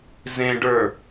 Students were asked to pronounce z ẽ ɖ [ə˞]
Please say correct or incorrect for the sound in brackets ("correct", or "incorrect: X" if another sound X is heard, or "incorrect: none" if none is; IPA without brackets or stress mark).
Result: correct